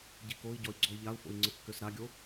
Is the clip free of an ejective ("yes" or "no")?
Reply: yes